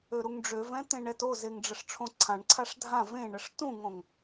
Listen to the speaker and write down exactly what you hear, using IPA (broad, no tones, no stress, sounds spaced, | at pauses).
ø ɾ u ŋ ɖ͡ʐ ø v ɛ̃ t̪ ẽ ɳ ɛ t o z e ŋ ɖ͡ʐ ə ʂ ʈ͡ʂʰ õ ǀʰ ã ɳ ǀʰ a ʂ dʱ ã v ẽ ɳ ə ʂ t ũ ŋ õ ŋ